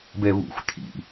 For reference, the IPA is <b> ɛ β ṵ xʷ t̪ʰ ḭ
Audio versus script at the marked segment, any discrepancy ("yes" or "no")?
no